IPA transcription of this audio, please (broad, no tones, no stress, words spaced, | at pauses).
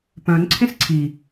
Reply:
pœ̃n ǀʰẽsǀʰi